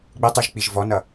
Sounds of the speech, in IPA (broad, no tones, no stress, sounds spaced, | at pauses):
ɡ͡b ɪ tˤ y ʒ k͡p i ʒ v ɔ n ʌ